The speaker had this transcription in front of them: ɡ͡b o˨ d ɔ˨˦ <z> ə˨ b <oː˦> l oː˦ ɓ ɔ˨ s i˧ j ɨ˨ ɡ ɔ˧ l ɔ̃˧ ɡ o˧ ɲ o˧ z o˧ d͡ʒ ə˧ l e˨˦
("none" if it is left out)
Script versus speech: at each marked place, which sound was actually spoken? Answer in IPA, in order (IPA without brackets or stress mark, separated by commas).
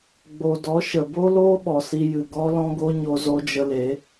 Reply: ʃ, o˦